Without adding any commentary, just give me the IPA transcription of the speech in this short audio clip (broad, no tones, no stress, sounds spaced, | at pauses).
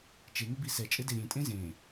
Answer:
t͡ʃ e ŋ ɘ b i s ɛ t͡ʃʼ ɘ d e ɾʲ ẽ tʼ ẽ z ẽ